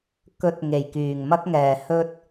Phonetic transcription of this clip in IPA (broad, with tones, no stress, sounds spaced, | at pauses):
k ɵ˨˥ t̚ ŋ e˨˩ j k yː˨˩ ŋ m ɐ˥ k̚ ŋ ɛː˨ h ɵ˥ t̚